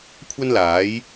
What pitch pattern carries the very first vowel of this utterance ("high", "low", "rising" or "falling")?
high